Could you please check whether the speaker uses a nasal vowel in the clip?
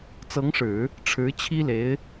no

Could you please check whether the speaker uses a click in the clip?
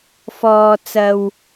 no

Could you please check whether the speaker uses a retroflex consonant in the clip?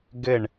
yes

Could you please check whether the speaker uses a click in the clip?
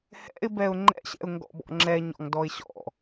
yes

